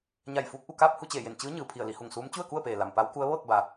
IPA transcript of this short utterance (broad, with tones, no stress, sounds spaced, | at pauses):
ɲ a˧˩ j f uː˧˥ k̚ ʔ u˥˨ k aː˥˨ p̚ h u˥˨ t͡ɕ eː˧˩ j e˧˩ n t͡ɕ ɯː˧˥ ɲ ɯː˩ pʰ i˧˩ ə̯ l i˩˧ h u˧˩ ŋ s uː˧˥ m t͡ɕ u˥˨ ə̯ k u˥˨ ə̯ p eː˩ l a˩ m p a˧˥ w k u˧˥ ə̯ ʋ ɤː˥˨ k̚ b a˩